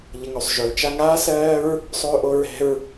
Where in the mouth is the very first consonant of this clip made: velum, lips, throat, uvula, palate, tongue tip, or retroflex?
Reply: palate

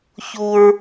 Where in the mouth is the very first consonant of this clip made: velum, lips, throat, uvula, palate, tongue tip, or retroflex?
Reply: palate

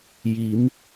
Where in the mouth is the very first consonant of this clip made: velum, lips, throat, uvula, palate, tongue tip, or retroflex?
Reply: palate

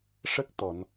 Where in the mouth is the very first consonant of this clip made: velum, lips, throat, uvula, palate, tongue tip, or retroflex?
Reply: retroflex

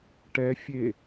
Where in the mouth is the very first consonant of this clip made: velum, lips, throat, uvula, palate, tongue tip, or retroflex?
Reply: retroflex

